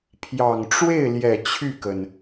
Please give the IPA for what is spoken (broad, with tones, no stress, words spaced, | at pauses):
pʰjɑ˨˩ŋʈ͡ʂwe˥˩ɪ̯ljɛ˨˩ t͡ɕʰy˥˩kə˩n